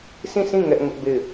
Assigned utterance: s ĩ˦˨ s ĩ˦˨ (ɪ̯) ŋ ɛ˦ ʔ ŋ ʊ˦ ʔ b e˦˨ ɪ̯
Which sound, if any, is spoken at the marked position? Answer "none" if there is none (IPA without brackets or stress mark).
none